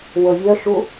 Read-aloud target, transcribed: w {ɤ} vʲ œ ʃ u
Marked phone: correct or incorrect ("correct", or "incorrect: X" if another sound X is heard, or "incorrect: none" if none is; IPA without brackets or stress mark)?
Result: correct